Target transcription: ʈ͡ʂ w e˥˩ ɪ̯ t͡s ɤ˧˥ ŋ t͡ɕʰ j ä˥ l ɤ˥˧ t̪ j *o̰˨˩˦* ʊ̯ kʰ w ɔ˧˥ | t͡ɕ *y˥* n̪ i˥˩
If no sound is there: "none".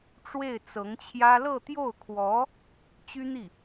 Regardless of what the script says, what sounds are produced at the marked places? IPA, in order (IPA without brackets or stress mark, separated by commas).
o˥˩, y˥